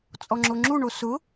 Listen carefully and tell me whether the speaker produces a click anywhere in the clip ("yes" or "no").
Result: yes